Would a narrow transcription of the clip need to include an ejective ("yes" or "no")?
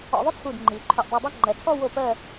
no